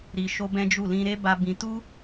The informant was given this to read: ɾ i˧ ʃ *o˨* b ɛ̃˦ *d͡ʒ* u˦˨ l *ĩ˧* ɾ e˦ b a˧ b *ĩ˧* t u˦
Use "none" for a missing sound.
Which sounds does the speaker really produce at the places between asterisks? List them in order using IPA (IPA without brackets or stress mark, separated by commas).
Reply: o˦, d͡ʒ, ĩ˧, ĩ˧